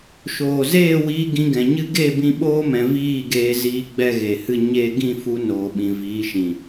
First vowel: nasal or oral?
oral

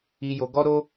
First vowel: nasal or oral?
oral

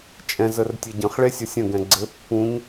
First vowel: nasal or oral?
nasal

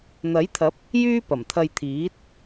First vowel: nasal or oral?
oral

